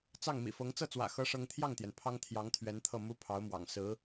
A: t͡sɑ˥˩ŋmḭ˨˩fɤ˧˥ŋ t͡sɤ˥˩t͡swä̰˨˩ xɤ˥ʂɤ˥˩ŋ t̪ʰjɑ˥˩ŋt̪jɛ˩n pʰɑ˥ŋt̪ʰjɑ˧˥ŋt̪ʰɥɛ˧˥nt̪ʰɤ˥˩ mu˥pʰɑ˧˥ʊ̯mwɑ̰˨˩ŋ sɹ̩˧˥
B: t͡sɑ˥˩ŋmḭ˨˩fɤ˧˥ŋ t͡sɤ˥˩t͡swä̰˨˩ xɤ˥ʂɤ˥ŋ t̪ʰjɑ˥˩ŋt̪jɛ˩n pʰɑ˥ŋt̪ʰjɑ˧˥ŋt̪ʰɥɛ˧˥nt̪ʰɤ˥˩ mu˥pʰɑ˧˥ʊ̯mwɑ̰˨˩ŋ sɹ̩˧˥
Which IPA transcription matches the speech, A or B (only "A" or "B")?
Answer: B